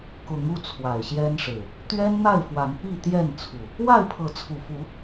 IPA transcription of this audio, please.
kʊ˨˦ŋu˥˨ t͡sʰwa˨˩ɪ̯ɕjɛ˦nʂɻ̩˨˩ | t̪ɥɛ˦nn̪a˥˨ɪ̯fwa˨˦n pi˥˨t̪jɛ˥˨nt͡sʰu˨˩ | wa˥˨ɪ̯pʰɤ˨˦t͡sʰu˨˩fu˨˦

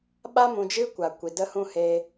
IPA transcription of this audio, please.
ɓa˦ mũ˧d͡ʒɨ˦kʷa˨ kʷi˨də˦hũ˦heː˧

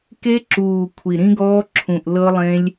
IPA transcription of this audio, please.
ke˦˥ǁuː˨˩ kʷʰi˨˩ɾĩ˦˥ɡɔː˦˥ ǁʰũ˨˩ʔlɤ˦˥lˠẽ˦˥lʲ

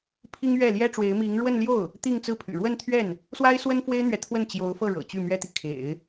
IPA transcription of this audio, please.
pʰi˥ŋ ɥɛ˥˩ljɛ˥ʈ͡ʂwe˧˥ɪ̯ mi˧˥ŋɻwə˥˧n ljo˥˩ʊ̯ | t̪i˥˧ŋt͡sɹ̩˥˩pʰy̰˨˩ ɻwə˥˧nt̪ʰɥɛ˥˩n | swa˥ɪ̯swə˥nfwe˥ɪ̯n̪ɥɛ˨ t̪ʰwə˥˩nt͡ɕjo˧˥ʊ̯fɤ˥˩ ɻɤ̰˨˩t͡ɕy˥˩mɥɛ˥t̪i˨ kʰḛ˨˩˦ɪ̯

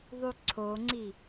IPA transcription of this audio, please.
ðˤyǀʰoŋ͡ǀi

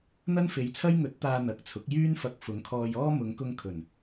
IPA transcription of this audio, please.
n̪ɐ˥nfe˨˧jt͡sʰɐ˥j ŋɵ˨˥t̚t̪aː˨ n̪ɐ˨˥k̚t͡sʰʊ˨˥k̚ jyː˥nfɐ˧k̚ fʊ˨˧ŋkʰɔː˧jɔː˥ mʊ˨˧ŋkʊ˧ŋ kʰɵ˨˩n

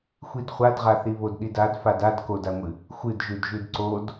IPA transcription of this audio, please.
xʷidχʷadʁaθi βodɗidad fadad kodaŋʷɨ | xʷɨdʒʉd ʒʉdǀod

